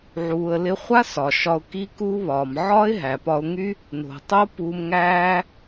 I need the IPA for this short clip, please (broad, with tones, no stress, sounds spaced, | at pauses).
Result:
ʕ uː˨ ə̯ l ɪ˧ χʷ a˦ s ɒ˨ ʃ ɒ˧ ʊ̯ k i˦ k uː˦ β ɒː˨ m ʕ ɒː˦ ɪ̯ ɦ æ˨ p ɒ˧ ʊ̯ ŋ y˦ | n o̤˨ tˤ o˦ p uː˧ m ŋ æː˦